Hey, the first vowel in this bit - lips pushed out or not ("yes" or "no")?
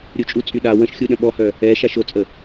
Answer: yes